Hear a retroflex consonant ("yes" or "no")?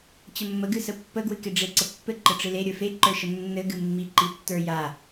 yes